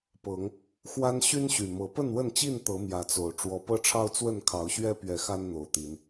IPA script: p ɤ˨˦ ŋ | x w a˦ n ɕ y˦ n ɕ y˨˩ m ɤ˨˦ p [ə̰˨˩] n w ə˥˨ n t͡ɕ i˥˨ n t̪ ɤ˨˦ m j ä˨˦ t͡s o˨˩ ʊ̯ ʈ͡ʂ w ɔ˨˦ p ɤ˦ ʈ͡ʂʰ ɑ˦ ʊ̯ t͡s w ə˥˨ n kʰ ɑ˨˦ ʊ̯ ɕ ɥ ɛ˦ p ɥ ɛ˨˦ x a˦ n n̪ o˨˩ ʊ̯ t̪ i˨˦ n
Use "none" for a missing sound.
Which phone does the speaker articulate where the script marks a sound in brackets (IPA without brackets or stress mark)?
ə˥˨